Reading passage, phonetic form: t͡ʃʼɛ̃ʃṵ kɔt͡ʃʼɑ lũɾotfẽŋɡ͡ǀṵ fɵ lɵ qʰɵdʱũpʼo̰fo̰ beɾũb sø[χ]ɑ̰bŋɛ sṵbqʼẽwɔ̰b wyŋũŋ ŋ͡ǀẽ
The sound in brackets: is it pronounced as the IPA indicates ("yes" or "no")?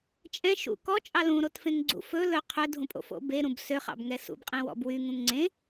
yes